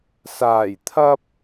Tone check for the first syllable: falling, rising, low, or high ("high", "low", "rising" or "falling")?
low